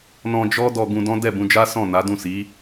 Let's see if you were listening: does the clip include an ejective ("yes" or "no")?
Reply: no